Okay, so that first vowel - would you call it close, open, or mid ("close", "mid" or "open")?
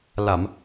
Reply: open